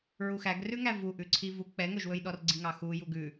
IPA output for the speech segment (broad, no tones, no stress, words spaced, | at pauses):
ɹuxæɡrʉ ŋævu ʔʉǀʰivu k͡pɛŋɵʒwɵjɗɔr ɡ͡ǀiŋɑxuju ɡʉ